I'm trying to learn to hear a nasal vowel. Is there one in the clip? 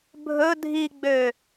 no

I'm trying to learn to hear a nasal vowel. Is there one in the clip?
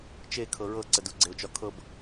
no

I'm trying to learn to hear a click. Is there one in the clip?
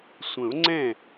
yes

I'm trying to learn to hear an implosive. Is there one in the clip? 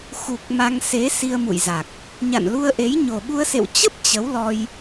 yes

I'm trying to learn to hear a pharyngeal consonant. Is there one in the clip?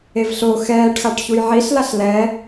yes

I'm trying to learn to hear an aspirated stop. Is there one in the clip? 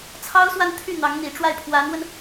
yes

